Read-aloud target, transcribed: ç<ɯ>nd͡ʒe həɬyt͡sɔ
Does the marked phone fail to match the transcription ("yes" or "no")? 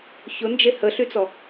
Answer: yes